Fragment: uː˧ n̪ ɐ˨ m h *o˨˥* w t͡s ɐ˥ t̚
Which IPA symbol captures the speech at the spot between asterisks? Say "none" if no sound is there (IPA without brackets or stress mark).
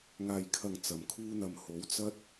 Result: o˨˥